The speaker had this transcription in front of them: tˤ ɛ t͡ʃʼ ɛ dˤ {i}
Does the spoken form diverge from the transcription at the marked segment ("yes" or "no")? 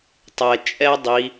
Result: no